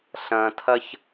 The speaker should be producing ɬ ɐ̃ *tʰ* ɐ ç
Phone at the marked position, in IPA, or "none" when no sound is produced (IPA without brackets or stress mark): tʰ